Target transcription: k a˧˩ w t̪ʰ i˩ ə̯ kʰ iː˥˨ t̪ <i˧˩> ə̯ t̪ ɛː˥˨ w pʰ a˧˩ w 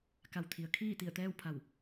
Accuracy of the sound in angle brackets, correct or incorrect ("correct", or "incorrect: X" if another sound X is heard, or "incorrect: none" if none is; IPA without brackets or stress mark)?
correct